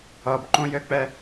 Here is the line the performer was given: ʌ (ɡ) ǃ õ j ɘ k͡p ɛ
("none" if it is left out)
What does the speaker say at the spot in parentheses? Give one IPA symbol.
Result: b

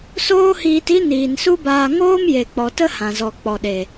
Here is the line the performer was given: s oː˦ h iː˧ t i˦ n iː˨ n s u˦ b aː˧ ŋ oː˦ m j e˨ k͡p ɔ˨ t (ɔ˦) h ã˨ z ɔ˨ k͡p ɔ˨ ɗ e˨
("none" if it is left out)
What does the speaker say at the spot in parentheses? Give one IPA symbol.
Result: ə˦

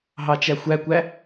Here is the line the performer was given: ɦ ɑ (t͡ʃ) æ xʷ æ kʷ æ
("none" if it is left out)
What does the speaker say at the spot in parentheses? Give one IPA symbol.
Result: t͡ʃ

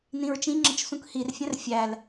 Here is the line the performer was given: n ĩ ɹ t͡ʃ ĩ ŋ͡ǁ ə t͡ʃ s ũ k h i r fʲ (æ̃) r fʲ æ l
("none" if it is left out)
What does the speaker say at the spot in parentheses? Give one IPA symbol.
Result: æ̃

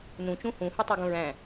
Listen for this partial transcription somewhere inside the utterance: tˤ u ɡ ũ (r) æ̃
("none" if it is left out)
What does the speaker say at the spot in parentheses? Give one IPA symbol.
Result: ɹ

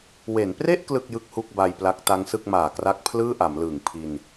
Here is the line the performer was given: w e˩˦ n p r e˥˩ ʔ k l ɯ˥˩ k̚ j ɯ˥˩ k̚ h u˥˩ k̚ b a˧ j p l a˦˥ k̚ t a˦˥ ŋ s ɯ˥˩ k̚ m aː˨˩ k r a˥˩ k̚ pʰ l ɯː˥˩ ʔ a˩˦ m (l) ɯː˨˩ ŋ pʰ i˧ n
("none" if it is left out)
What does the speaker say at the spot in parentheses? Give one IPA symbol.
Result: l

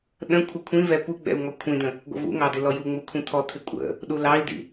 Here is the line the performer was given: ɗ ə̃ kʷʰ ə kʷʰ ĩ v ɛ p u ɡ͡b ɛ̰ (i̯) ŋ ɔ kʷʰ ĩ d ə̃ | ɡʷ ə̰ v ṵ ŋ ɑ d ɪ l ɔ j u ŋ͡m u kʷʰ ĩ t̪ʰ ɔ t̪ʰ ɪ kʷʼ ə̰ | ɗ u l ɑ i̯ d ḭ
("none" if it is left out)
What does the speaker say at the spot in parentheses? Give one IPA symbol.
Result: u̯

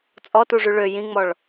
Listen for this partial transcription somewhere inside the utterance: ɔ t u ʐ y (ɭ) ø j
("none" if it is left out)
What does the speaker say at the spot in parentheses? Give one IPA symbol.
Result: ɭ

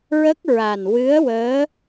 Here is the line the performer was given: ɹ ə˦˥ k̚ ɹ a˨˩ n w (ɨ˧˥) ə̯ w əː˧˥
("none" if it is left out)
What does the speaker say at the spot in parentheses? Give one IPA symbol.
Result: ɨ˧˥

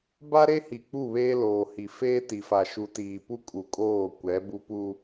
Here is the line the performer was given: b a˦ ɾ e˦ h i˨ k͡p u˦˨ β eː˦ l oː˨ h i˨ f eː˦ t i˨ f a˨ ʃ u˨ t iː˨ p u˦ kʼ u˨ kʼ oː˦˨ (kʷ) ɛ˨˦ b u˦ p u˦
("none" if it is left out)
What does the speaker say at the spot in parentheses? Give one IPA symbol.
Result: kʷ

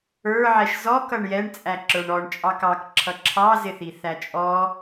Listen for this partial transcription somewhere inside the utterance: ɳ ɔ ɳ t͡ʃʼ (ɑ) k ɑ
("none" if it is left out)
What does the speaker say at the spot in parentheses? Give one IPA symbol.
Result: ɑ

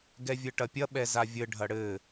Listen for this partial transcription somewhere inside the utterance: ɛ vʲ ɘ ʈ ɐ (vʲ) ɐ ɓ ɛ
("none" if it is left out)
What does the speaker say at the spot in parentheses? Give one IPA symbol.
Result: pʲ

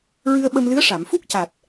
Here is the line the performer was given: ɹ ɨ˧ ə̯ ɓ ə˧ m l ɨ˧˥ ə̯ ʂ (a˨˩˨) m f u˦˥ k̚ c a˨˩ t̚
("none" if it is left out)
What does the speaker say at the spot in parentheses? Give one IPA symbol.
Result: a˨˩˨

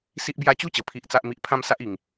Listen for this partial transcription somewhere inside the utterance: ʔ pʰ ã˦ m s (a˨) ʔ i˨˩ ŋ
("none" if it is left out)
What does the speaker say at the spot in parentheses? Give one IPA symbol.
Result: a˦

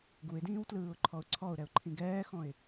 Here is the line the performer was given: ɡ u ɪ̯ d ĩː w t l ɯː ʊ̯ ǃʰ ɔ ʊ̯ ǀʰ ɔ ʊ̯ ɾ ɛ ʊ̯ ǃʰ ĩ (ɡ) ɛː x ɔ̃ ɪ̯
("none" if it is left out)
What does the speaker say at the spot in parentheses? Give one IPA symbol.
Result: ɡ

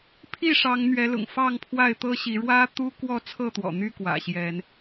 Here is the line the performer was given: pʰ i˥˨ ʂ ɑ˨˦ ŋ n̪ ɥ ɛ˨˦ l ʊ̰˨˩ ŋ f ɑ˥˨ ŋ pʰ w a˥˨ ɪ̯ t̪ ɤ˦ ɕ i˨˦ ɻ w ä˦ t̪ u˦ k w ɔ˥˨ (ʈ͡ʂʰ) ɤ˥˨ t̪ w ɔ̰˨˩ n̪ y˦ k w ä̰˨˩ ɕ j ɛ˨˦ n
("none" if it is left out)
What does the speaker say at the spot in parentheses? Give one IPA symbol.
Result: t͡sʰ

